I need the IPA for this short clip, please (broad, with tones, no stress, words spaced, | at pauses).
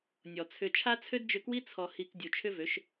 nʲɔ˨t͡sʰʏ˧ t͡ʃʰa˦t͡sʰø˦dd͡ʒʏ˧kwi˦ t͡sʰɔ˧hi˧k dʲu˨t͡ʃʰʏ˦vø˨˦ʃ